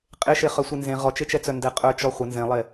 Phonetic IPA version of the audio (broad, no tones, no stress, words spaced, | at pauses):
qʼeʃe χœsʷenzẽ ʁɔt͡ʃet͡ʃɛt͡sœ ndɛqʼœt͡ʃɔ χʷə nzẽlˠe